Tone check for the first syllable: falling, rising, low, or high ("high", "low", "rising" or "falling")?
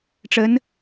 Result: rising